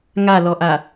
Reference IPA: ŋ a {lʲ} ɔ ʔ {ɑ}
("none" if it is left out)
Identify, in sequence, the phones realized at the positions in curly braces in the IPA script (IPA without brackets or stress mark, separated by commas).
l, a